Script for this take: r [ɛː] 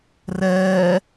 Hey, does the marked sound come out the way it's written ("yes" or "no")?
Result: yes